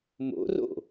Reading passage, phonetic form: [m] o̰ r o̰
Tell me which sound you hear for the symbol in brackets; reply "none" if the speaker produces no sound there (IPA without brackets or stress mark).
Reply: m